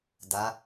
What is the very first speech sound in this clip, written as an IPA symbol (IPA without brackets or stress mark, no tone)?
d